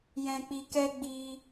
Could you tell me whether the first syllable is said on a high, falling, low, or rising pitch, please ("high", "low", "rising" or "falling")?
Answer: low